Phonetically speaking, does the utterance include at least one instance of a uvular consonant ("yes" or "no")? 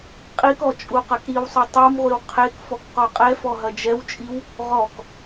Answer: yes